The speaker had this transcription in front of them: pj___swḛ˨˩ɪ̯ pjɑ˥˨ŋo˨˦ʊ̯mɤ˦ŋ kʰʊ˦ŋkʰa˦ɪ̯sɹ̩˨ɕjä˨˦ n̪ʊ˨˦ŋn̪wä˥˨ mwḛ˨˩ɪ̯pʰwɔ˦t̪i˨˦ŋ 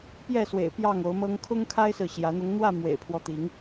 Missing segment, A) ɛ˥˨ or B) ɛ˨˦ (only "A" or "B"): A